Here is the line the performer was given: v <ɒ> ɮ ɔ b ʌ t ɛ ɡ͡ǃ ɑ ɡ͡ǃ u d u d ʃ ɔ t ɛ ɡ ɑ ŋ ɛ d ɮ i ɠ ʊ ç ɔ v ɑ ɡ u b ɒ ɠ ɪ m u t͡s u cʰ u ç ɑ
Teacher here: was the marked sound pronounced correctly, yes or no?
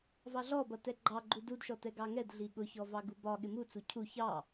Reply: no